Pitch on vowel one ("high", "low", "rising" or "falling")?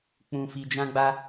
low